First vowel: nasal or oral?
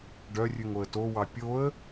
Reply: oral